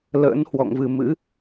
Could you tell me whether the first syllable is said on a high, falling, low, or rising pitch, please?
rising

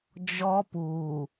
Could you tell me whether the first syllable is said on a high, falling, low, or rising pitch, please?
high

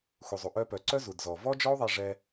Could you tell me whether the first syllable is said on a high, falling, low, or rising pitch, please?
low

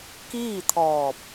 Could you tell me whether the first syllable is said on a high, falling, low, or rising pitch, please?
falling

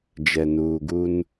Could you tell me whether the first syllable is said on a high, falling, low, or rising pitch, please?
low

